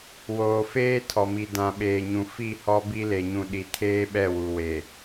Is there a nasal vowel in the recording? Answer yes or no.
yes